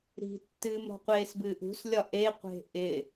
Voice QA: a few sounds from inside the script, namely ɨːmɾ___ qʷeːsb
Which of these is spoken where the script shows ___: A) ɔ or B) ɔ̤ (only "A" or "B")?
B